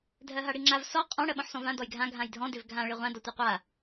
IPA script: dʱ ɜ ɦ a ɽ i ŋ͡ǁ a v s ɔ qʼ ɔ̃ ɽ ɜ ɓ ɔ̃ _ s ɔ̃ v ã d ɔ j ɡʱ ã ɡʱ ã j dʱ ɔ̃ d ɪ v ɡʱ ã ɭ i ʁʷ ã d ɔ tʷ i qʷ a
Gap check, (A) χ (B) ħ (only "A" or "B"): B